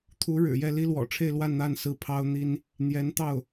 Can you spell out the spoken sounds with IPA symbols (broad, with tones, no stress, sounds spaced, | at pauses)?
t̪ʰ u˧˥ ɻ ɻ̩˨˩ j ɛ˥˩ l i˥ l w ɔ̰˨˩ ʈ͡ʂʰ e˥˧ ɪ̯ l w a˥˧ n n̪ a˥˩ n s ɹ̩˥ pʰ ɑ˥ ʊ̯ n̪ i˥ n | n̪ j ɛ˧˥ n t̪ ɑ˥˩ ʊ̯